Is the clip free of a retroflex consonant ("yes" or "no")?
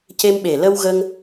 yes